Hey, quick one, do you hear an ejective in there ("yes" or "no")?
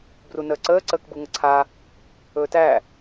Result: no